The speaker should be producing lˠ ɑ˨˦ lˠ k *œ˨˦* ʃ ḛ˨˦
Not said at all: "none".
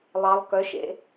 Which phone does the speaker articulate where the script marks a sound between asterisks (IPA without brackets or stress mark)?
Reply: œ˨˦